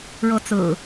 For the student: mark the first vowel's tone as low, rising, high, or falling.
rising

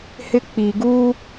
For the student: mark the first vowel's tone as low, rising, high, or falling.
high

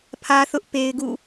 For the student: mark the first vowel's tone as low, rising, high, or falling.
high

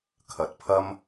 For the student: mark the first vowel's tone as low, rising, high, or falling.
rising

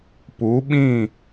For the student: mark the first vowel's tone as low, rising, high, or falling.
rising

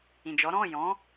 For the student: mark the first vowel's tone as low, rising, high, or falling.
low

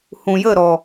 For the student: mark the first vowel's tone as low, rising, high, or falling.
low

